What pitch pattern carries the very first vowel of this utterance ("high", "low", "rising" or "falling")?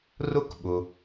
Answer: high